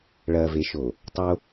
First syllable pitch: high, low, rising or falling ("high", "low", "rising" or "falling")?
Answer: low